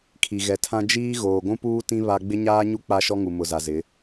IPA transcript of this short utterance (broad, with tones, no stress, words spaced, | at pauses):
kʰi˨ ɣɛ˨tʰã˦ d͡ʒiː˦ ɣoː˨ɡʷũ˦puː˦tĩ˦ βa˦ ɡ͡bɪ˦ɲaː˦ɲu˦ k͡pa˦ʃɔ˦ŋu˨ mʊ˨za˨zɪ˨˦